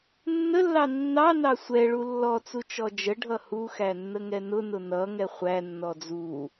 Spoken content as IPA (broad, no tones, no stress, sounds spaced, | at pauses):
nː ə lː ɑ nː ɑ n ɑ sʷ ɛ ɭ u lː ɔ t͡s u t͡ʃ ɔ d͡ʒ ə ɖʱ ʌ h u x æ nː ə ŋ ɛ n ʊ n ʊ n ʌ ŋ ɛ χʷ æ nː ɔ d͡z u